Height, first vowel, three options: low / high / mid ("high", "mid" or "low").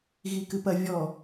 high